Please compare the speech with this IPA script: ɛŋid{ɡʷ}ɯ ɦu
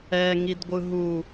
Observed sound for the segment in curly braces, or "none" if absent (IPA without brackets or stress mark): ɡʷ